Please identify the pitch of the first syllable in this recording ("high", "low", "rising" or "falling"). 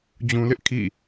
low